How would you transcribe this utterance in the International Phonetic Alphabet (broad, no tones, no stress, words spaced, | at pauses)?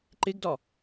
ǃeɡdɒ